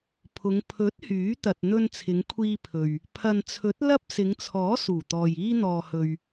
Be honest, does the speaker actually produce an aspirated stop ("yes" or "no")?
yes